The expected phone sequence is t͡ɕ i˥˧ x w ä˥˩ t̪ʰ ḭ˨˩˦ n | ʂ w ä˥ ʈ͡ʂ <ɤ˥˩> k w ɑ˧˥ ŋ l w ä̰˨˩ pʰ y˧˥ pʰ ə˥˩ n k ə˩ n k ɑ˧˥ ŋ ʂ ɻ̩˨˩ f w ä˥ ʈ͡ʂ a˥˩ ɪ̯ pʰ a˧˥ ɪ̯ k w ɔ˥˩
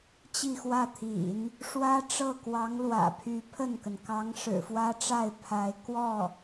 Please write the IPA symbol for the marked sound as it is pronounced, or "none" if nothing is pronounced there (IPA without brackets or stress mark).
ɤ˥˩